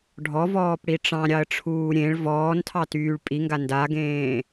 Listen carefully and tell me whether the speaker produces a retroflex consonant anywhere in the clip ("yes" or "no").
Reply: yes